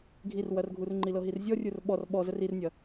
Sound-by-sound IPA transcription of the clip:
ɡʱ i r w ɐ r ɡʱ u r ŋ͡ǃ i l ɤ ɦ i r zʲ ɔ rʲ u r ɓ ɔ r ɓ ɔ z ə r i r nʲ ɐ

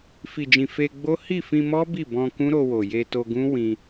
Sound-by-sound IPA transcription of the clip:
f i˨ d͡ʒ ĩ˨ f e˧ ɡ͡b o˦ h i˦˨ f ĩ˧ m ɔ˦ b i˦˨ b ɔ̃˧ k ũ˦ ɾ o˧ w o˨ j e˧ t o˧ ɡ ũ˦ w ĩ˧

